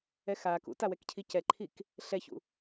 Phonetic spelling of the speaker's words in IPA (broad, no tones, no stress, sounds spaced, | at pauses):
ɛ x aː k ṵ t a w ɛ k cʰ i c ɛ ǃʰ i k | ɬ ɛ ç ṵ